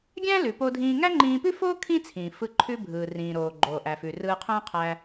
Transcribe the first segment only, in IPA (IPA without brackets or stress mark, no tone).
ɡʲ